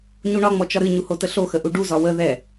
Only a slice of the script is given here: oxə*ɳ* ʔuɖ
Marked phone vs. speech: incorrect: none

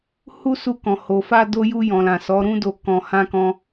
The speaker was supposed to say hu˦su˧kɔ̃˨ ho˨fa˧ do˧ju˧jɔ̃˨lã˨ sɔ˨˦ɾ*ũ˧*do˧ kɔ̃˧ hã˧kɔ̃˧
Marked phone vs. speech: incorrect: ũ˦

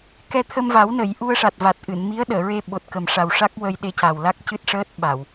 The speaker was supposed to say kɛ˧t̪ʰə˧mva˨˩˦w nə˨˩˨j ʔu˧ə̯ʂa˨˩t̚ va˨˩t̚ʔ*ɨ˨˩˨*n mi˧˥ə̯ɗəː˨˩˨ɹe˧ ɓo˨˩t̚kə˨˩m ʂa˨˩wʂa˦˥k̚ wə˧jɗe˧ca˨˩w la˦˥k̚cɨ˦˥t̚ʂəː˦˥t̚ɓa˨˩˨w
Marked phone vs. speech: correct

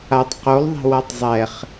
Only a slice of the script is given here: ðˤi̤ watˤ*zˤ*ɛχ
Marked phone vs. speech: correct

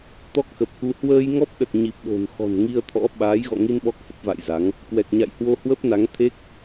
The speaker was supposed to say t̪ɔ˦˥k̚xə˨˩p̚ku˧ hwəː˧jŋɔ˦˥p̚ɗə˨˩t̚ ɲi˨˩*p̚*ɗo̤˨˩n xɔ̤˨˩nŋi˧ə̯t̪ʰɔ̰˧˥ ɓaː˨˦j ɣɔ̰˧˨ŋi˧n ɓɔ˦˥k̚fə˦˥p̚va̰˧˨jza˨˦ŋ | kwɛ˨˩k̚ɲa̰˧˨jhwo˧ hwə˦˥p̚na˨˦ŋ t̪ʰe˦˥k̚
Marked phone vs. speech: correct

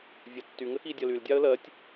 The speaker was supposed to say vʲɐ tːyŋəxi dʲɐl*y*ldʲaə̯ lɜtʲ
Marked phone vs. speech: correct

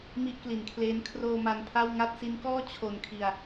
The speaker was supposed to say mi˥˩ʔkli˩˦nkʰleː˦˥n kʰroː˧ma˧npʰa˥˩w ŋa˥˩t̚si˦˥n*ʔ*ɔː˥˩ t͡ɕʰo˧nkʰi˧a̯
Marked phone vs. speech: incorrect: k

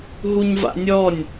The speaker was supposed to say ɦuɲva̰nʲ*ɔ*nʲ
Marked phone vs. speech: correct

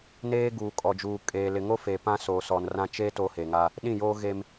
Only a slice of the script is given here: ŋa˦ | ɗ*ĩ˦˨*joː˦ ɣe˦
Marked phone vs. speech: correct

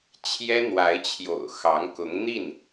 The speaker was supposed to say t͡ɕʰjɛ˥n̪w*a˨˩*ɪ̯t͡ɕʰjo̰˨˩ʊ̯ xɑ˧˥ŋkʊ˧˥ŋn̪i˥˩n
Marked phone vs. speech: incorrect: a˧˥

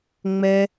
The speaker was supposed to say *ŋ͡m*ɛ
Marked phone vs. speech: correct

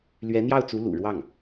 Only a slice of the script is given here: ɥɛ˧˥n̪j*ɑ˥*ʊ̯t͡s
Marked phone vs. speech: incorrect: ɑ˥˩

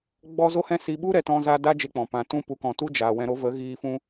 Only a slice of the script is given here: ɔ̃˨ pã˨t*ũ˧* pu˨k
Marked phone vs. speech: correct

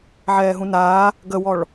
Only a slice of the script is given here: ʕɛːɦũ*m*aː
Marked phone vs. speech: incorrect: n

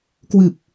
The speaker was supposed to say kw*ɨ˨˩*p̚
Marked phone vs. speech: correct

